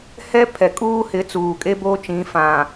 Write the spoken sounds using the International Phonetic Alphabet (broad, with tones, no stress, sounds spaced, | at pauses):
h ɛ˦ pʰ ɛ˨ kʼ uː˦ h ɪ˨˦ t͡s uː˨ kʼ e˦ b oː˦ t͡ʃ ĩ˨˦ f ã˨